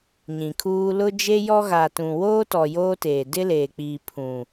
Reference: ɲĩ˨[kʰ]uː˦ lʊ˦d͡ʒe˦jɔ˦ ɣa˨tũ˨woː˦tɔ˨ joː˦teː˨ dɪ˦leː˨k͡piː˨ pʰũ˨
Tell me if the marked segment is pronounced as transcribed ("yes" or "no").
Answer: yes